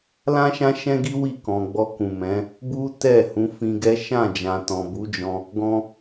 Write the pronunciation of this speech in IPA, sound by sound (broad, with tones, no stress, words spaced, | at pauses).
lã˦ʃã˦ʃɛ̃˦ɡi˦ wi˦˨kɔ̃˨ɡ͡bɔ˧ kũ˨mɛ̃˨˦ | bu˦ tɛ˦˨ hũ˨˦fĩ˧ɡɛ˦ ʃã˦˨d͡ʒã˨tɔ̃˨ bu˨˦d͡ʒɔ̃˧ | ɡɔ̃˧